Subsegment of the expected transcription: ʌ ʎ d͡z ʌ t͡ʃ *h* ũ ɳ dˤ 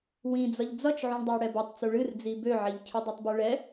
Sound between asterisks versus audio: incorrect: ʕ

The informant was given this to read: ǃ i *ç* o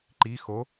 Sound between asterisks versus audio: incorrect: x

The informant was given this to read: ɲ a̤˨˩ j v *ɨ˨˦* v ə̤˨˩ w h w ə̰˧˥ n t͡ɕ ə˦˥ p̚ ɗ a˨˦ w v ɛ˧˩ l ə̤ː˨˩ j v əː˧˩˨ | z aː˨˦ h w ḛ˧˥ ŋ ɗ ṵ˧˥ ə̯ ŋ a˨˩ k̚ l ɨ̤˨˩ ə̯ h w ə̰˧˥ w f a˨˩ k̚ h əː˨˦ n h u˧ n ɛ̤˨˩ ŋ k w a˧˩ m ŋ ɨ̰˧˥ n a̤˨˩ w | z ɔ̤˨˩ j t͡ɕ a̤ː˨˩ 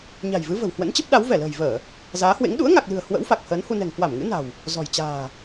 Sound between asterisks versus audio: correct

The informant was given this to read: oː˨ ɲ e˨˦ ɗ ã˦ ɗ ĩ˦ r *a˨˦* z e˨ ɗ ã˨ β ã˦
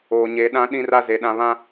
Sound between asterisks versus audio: incorrect: a˦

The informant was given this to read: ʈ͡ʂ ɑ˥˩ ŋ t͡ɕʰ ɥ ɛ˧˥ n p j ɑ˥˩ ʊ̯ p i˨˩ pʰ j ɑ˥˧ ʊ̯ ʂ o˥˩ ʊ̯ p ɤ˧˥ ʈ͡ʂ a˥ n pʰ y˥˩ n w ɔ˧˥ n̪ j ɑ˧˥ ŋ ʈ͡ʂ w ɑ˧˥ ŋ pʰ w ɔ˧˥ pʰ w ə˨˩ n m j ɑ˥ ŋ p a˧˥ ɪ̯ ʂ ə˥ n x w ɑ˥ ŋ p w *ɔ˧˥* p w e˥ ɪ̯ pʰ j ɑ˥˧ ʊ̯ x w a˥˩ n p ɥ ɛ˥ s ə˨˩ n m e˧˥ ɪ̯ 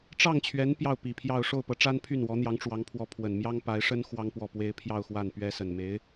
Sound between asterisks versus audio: incorrect: ɔ˥˩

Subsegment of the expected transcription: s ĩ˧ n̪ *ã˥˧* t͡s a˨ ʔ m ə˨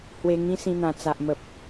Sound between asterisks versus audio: incorrect: ã˨˩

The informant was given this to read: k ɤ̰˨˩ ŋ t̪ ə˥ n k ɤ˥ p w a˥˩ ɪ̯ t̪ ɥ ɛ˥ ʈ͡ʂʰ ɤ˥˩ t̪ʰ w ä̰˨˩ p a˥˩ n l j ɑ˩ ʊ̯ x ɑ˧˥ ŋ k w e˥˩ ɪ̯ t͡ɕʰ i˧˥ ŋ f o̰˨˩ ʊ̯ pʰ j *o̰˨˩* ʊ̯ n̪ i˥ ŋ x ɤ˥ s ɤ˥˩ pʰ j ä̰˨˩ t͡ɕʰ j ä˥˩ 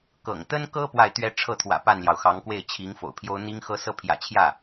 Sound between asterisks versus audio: incorrect: o˥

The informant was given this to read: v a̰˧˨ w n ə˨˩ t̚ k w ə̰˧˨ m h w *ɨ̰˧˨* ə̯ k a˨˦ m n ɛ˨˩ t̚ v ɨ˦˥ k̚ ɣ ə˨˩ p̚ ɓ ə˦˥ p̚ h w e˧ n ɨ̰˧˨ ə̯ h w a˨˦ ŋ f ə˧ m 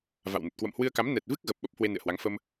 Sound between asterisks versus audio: incorrect: ɨ˧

